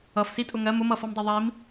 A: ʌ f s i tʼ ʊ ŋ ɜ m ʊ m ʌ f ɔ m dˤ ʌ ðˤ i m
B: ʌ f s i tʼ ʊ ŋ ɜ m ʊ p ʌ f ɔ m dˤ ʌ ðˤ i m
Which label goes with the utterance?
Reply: A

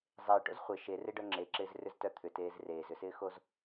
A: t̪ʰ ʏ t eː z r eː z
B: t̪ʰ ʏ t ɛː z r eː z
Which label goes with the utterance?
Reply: A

